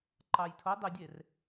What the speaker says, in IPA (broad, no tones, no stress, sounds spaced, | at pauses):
ǃ ɑ j tʰ o dˤ e dʲ e r